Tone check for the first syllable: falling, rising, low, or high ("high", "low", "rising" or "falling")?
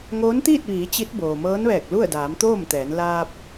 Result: rising